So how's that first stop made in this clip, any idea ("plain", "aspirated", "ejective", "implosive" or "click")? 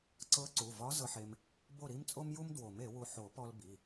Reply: click